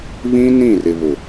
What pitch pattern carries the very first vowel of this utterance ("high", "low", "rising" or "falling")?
high